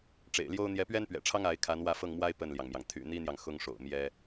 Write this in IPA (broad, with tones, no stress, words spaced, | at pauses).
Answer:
ʈ͡ʂḛ˨˩ɪ̯ljo˥ʊ̯ n̪jɛ˧˥pɥɛ˥npɥɛ̰˨˩ʈ͡ʂʰɑ˥ŋ a˧˥ɪ̯ kʰa˧˥nwä˥˧fɤ˥˩ŋmwa˥ɪ̯ pə˥˩nljɑ˩ŋmjɑ˩ŋ t̪ʰy̰˨˩ n̪i˥n̪jɑ˨ŋ xʊ˥ŋʂo̰˨˩ʊ̯ mjɛ˥